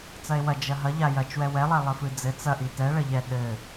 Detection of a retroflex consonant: present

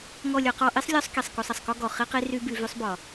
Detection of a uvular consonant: present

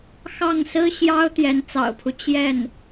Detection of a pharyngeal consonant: absent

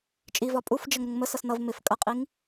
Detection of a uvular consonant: present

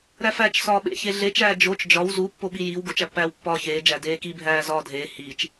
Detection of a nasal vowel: absent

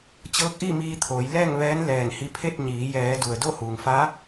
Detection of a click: absent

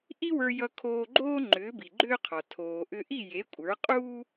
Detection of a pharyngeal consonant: absent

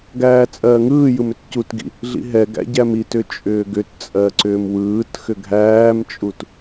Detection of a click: present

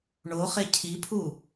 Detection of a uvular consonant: present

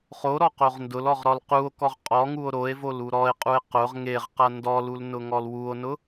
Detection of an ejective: present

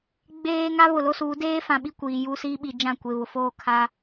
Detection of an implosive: present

